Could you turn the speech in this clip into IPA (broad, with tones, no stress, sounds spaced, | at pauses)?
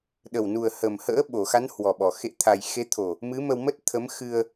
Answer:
ɗ ə˨˩ w n u˨˩ ə̯ h ə˨˩ m h ə̰ː˧˥ ɓ o˧˩ x a˨˦ n h w ɔ˨˩ ɓ ɔ˨˩ x ḛ˧˨ t̪ʰ a˨˩ j x e˨˦ t̪ʰ o˨˩ | m ɨ˨˦ m ə˧ w m ə˦˥ t̚ t̪ʰ ə˨˦ m x ɨ˧ ə̯